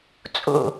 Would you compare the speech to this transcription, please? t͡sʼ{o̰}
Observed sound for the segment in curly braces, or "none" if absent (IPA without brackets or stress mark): o̰